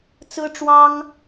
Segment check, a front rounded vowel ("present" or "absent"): absent